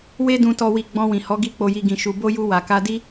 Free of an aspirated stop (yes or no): yes